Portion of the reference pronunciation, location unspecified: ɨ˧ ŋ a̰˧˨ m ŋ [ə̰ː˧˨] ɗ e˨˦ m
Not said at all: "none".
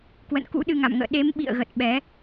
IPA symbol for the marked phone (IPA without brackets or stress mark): ə̰ː˧˨